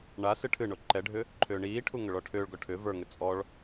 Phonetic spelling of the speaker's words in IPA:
ɳ a s ɨ ʈʰ ɨ ɳ o ǃ ɛ ɖʱ ʏ | ǃʰ ʏː ɳ iː ʈʰ u ŋ ʏ ɭ ɔ ʈʰ ʏː ɭ ɡ ɔ ʈʰ ʏ v ə˞ ŋ ʏ t͡sʼ ɔ ɭ

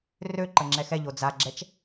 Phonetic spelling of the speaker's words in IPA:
r ø ǃ ə ŋ͡ǁ ɛ x ɛ ʎ o d͡z a ɡ͡ǁ ɛ t͡ʃ

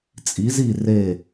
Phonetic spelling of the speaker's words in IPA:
t͡sʼ i˧˥ z i˥˧ r e˥˧

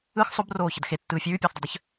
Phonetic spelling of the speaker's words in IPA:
ɯ x sˤ o b r oː ç ə d x e tː ɯː fʲ ʉː pʲ ɯː θ dˤ ʉ dˤ ə ç

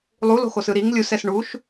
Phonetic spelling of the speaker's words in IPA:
lˠ u l o̤ x o s ɯ ɾ i ŋ lʲ u s ɛ s ɳ u ʃ

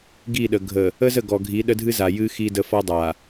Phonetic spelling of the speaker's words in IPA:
ɡ i˦˨ ɗ ə˨ ɡʱ ə˨ | ə˦ z ə˦˨ ɡ ɔ˨ ɡʱ i˨˦ ɗ ə˦ dʱ ɨ˦ z a˨ j ɨ˦ x i˦ d ə˦ f ɔ˦ dˤ a˨

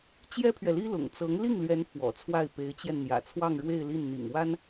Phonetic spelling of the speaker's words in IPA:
t͡ɕ j ɛ˥ pʰ ɥ ɛ˨ l i˥ l ʊ̰˨˩ ŋ t͡s ɤ˧˥ ŋ l i˥˩ ŋ l ɥ ɛ˧˥ n f w ɔ̰˨˩ t͡sʰ w a˥˩ ɪ̯ p e˧˥ ɪ̯ t͡ɕ j ɛ˧ n n̪ j ä̰˨˩ t͡sʰ w ɑ˥˧ ŋ ɻ w e˥˧ ɪ̯ l i˥˩ n n̪ ḭ˨˩ ŋ w a˥ n

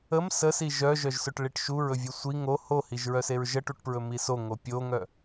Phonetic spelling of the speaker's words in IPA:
ə m s ə s i ʒ œ ʒ œ ʒ s ɵ ʈ ɭ i ʈ ʃ u ɹ ɵ vʲ u sʷ i ŋ o h o h i ʒ ɹ œ s e ɹ ʒ ə ʈ u ʈ p ɹ ɵ m i s o ŋ o pʲ o ŋ œ

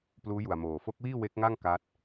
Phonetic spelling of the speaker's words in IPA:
p l uː˦˥ j u˨˩ a̯ m oː˨˩ f o˦˥ k̚ w iː˥˩ w e˦˥ k̚ ŋ a˥˩ ŋ k a˦˥ t̚

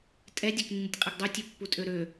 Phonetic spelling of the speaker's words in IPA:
tʼ ɛ dʲ ø k nː ɨ tʲ qʼ ɛ ɡ dˤ u tʲ ø pː u tʼ ø ɾ ø

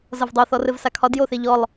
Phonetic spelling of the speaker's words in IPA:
z ʌ v dˤ o θ ɔ r ɘ v s a kʰ ɒ d j o θ e ʎ ɔ lˠ

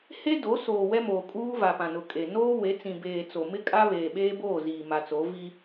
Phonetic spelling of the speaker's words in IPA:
h e˦ d o˨˦ s oː˨ w ɛ˦ m oː˨ kʼ uː˦ v a˨ p ã˨ n ʊ˨ kʼ e˨ n oː˦ w e˨˦ t͡s ĩ˨ b eː˨ t͡s o˨ m ɪ˦ kʼ a˦ β eː˨ ɓ eː˦ b oː˦˨ z iː˨ m a˨ t͡s o˨˦ v i˦

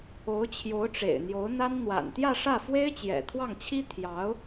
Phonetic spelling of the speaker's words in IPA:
o˧˥ ʊ̯ t͡ɕʰ j o˧˥ ʊ̯ ʈ͡ʂ ḛ˨˩ ɪ̯ n̪ j o˧˥ ʊ̯ n̪ a˥ n n̪ w a̰˨˩ n t̪ j ä˥˧ ʂ ä˥˩ f w e˥ ɪ̯ t͡ɕ j ɛ̰˨˩ t̪ʰ w ɑ˥˩ ŋ t͡ɕʰ i˥ t̪ʰ j ɑ˧˥ ʊ̯

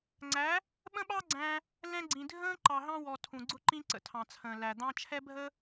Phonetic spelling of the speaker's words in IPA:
ŋ͡ǀ æ˨˦ | ɓ ə̃˦ ɓ ɑ˦ ɡ͡ǀ æ̃˧ | l ɛ̃˧ ɡ͡ǀ ĩ˨ dʱ ə̃ː˦ ǃ ɑ˨ ɦ ɑ̃˧ w ɔ˨ tʰ ũ˨ ɡ͡ǀ ʊ˧ ǃ ĩ˧ ǀ ə̰˨ tʰ ɑ̃˨ t͡sʰ ə̃ː˨ l æ˨ d̪ ɑ̃˧ t͡ʃʰ ɛ˦ bʱ ə˦

